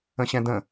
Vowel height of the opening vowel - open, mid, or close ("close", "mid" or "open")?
mid